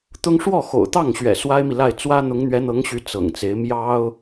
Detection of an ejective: absent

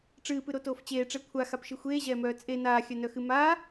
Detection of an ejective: present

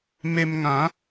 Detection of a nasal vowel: present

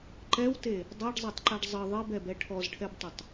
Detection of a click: present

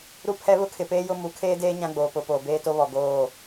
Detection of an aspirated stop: present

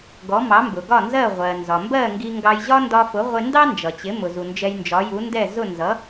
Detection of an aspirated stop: absent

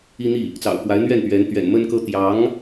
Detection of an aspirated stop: absent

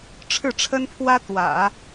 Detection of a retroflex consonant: present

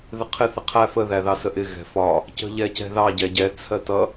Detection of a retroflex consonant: absent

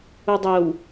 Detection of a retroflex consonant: absent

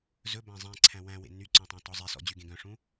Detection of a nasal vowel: present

